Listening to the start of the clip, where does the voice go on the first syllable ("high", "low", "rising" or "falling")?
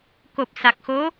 low